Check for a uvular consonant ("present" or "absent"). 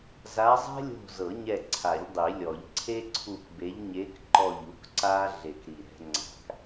absent